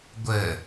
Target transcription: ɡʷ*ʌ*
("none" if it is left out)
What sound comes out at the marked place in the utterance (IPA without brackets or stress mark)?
ə